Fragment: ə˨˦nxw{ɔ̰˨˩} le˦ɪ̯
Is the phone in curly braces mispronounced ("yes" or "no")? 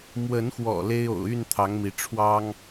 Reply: no